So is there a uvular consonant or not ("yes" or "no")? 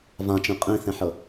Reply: yes